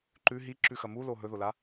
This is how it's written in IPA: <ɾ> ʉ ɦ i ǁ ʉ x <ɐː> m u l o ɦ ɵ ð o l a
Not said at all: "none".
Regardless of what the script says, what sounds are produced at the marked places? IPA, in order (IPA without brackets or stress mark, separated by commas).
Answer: ǃ, ɐ